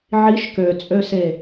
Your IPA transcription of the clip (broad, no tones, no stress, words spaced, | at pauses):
ʕiʃ køt͡sʼøse